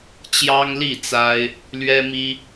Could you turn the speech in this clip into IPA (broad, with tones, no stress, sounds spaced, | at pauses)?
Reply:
t͡ɕ j ɑ˦ ŋ l i˥˨ t͡s a˦ ɪ̯ | l ɥ ɛ˦ m i˦